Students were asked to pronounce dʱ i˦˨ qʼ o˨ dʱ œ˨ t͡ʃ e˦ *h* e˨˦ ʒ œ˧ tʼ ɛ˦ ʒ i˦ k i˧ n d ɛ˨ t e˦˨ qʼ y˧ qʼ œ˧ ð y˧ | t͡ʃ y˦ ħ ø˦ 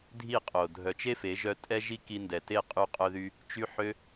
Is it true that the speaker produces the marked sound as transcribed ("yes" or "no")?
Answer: no